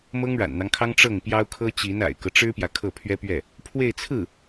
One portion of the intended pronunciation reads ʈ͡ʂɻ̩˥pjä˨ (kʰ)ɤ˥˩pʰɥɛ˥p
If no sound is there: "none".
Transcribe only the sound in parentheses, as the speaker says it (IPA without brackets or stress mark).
kʰ